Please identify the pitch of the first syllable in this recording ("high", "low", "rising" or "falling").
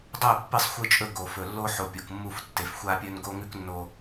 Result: falling